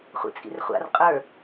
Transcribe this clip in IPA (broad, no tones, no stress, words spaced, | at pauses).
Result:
χʷḭt͡sʼḭrχʷa̰r qʼə˞